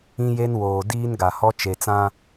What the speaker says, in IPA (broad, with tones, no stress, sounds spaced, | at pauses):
ĩ˦ j e˦ n w oː˨ d iː˦ n ɡ a˨ h ɔ˦ t͡ʃ e˨ t͡s ã˦